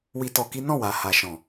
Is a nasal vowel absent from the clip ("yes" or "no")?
no